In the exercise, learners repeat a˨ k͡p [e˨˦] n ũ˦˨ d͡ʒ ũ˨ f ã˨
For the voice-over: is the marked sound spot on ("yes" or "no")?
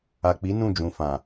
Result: no